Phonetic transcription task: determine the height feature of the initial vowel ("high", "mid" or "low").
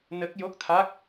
mid